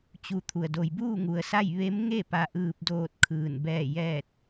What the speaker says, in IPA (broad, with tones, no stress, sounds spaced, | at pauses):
t͡ɕ u˧ t̪ʰ u˩ ə̯ d o˩ j b uː˥˨ ŋ u˩ ə̯ s a˥˨ j ʋ e˧˥ m ŋ e˥˨ p a˧ ʔ ɯː˧ p̚ d oː˥˨ t̚ kʰ ɯː˧˩ n b ɛː˥˨ j ɛː˥˨ t̚